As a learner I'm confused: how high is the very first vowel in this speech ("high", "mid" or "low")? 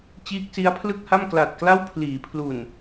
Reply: high